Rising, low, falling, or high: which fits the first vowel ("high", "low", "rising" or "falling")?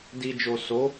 low